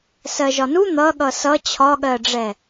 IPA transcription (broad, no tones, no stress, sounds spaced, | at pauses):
s ɜ ʒ ɒ n u n̪ ʌ ɠ ʌ s ʌ t͡ɕʰ ɒ ɠ ɜ ɖ͡ʐ ɛ